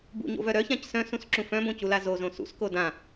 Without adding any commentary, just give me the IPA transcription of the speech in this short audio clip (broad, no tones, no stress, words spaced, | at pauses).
bṵɲo̰vœ ɾœçãc sœ̃sũsǁũ fœ̃bõcula zozõ sṵsko dã